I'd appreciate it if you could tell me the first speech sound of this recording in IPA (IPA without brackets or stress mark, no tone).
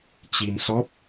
t͡ɕ